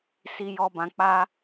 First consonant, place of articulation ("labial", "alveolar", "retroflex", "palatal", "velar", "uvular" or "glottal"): alveolar